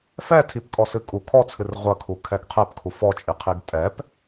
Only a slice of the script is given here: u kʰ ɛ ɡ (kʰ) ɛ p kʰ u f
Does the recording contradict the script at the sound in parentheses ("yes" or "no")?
yes